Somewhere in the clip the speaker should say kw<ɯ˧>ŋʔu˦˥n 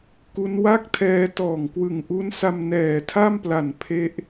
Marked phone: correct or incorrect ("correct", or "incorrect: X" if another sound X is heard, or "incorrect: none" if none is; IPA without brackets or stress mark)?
incorrect: ɯ˨˩